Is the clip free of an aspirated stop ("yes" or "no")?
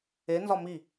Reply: yes